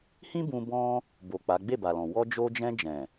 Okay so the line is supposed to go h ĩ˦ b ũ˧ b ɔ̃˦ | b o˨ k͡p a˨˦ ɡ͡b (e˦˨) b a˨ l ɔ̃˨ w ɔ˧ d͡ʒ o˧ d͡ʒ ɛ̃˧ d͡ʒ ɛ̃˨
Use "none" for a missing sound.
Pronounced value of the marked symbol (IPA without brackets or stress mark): e˦˨